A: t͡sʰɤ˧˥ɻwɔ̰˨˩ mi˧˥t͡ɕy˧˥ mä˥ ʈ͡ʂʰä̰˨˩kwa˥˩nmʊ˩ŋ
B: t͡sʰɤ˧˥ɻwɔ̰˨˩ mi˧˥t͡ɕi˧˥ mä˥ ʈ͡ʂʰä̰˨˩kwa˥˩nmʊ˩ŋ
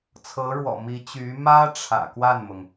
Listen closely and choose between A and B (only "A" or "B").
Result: A